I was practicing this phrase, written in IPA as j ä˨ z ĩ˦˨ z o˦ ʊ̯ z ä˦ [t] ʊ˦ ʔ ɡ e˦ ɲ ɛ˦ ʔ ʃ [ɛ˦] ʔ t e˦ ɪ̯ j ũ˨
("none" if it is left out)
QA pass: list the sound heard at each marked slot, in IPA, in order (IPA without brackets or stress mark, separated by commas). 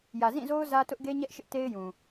t, ɪ˦